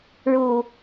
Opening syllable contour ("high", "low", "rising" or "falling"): low